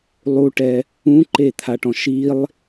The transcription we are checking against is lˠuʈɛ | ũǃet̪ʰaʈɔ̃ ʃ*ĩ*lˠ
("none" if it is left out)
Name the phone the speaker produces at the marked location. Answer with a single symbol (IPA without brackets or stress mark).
i